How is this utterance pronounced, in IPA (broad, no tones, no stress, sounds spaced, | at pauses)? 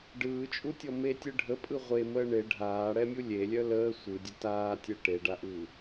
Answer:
ɖ ɯː t͡ʃʼ u tʲ ɔ m e tʲ ɯ ɖʱ ə pʼ ɯ ʁʷ e m əː ɳ e ɖʱ aː ɽ ɛ mʲ u lʲ e lʲ œ l əː sʷ ɯ dʲ ə t aː tʲ ɛ ʈ e ɖ a ʔ ɯː